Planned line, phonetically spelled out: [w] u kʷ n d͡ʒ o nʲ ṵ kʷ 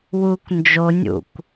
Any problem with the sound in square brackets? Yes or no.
no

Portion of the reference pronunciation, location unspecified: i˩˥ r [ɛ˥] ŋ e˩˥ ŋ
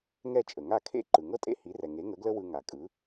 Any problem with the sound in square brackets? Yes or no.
yes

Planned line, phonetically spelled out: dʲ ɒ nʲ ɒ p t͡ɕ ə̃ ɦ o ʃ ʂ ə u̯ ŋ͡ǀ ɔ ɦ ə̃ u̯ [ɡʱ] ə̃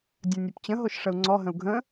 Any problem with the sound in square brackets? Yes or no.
no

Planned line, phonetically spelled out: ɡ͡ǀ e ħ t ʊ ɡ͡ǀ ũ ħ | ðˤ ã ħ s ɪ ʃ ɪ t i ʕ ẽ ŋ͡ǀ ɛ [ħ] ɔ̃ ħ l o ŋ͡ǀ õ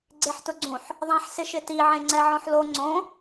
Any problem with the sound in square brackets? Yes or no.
yes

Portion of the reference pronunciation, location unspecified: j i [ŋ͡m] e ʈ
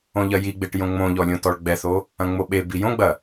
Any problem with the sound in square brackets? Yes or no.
yes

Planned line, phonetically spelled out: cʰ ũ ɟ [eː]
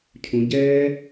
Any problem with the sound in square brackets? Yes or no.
yes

